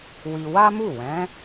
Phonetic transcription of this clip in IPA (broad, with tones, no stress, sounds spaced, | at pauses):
w i˧ w a˦ m u˦˨ w ɛ̃˨˦